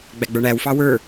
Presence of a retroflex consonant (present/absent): present